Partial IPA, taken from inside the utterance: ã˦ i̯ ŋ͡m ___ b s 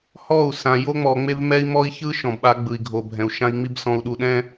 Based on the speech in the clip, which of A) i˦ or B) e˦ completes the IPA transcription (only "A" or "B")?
A